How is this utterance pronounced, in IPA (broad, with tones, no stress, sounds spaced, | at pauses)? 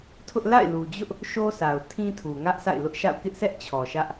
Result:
tʰ ʊ˦ ʔ l a̰˦˨ ɪ̯ l u˨ d͡ʑ ʊ˦ ʔ | ʃ o˦ s a˨ ʊ̯ tʰ ĩ˦ tʰ u˨ ŋ ä˦ ʔ s a̰˦˨ ɪ̯ l ʊ˦ ʔ ʃ a̰˦˨ ʊ̯ k ɪ˦ ʔ sʰ ɛ˦ ʔ t͡ɕʰ ɔ˨ ʃ ä˦ ʔ